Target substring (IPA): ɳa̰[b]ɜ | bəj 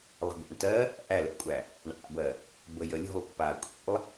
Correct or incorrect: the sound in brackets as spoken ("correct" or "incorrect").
correct